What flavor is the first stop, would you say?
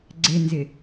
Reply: click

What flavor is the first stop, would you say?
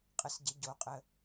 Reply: ejective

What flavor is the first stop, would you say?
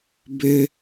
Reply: plain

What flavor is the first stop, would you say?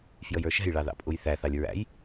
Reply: ejective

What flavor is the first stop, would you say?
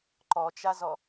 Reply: click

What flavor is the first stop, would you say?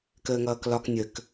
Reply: plain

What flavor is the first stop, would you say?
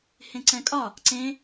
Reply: click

